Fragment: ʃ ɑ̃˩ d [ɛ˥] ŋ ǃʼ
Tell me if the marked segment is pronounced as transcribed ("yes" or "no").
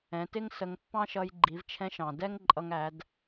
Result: yes